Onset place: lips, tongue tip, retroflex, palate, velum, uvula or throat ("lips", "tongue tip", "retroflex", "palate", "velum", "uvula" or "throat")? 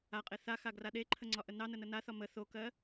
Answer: uvula